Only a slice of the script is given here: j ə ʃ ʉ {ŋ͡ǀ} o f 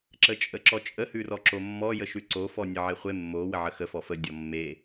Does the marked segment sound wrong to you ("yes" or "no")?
yes